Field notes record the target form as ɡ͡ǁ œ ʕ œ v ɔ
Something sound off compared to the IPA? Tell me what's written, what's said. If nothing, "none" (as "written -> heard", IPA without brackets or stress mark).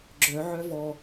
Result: none